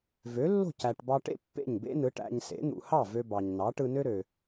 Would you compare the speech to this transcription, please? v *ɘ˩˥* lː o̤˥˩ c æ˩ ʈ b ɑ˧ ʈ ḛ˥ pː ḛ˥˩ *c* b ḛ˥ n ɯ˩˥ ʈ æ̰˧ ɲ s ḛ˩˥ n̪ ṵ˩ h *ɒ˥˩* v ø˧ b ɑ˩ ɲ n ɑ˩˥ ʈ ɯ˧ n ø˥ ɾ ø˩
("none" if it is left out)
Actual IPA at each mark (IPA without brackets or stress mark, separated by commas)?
ø˩˥, ɲ, ɑ˥˩